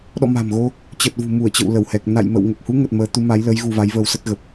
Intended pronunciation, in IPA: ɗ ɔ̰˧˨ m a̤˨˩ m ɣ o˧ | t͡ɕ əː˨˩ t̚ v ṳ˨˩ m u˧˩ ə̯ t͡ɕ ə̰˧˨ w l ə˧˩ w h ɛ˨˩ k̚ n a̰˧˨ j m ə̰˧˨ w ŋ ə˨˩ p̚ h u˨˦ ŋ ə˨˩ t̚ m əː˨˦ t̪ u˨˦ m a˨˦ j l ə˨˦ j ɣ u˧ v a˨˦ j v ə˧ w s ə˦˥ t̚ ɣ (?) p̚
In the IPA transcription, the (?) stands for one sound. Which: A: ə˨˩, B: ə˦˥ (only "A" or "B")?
A